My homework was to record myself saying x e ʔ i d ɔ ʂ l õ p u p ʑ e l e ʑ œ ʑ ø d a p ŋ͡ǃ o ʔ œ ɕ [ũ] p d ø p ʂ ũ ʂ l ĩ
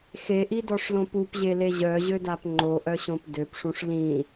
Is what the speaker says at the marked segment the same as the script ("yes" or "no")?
no